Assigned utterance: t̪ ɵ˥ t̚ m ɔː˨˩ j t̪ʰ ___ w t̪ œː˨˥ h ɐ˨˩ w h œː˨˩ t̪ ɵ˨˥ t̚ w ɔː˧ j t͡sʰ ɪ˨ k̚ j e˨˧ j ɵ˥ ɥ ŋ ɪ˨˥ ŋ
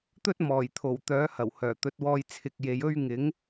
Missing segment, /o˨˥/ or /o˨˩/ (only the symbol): o˨˩